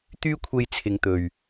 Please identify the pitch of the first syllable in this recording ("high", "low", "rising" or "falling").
high